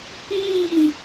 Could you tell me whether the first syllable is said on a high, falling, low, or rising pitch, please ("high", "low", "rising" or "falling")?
falling